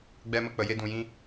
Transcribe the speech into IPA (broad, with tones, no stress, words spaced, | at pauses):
ɡ͡bɛ˧mə˧k͡pə˨ je˧dũ˨jĩ˧